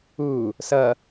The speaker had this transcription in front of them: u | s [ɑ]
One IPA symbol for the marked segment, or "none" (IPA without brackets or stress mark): ʌ